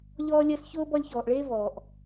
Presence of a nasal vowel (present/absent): absent